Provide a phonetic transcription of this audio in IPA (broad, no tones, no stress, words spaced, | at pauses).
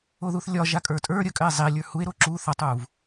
oðuθlʲɒ ʒakʼə˞tʼə˞ ɾʲəkʼɘe̯ zˤilʲə˞ hue̯ɾo ǁu θɒtˤuv